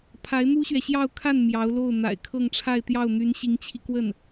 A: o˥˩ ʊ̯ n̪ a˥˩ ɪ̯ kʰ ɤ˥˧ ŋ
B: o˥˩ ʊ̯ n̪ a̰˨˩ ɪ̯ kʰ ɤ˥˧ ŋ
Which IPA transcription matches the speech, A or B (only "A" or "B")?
B